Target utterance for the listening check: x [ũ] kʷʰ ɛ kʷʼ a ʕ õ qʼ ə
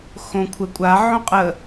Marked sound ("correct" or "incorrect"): incorrect